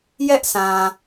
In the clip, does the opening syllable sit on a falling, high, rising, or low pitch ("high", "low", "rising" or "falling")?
high